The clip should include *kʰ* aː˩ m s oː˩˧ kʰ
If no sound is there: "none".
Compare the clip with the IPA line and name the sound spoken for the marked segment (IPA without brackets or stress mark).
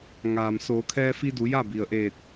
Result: ŋ